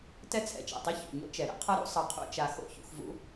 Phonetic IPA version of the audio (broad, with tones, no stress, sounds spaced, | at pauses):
t ɛ˥ t͡sʰ ɛ̰˩ t͡ʃ ɛ̰˩ tˤ i˥ ç ṵ˩ ɲ o̰˥ t͡ʃ ɛ˩ ɾ ɛ̰˥ qʰ ʌ˥ ɾ ṵ˥ sˤ ʌ˧ qʰ ṵ˧ t͡ʃ a˧ x o̰˥ ç ṵ˧ x v ṵ˥